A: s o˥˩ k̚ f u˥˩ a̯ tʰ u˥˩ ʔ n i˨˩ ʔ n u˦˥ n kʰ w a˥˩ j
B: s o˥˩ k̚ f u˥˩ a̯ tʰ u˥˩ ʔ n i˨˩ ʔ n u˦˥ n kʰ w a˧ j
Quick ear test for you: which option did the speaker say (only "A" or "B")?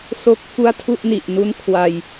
B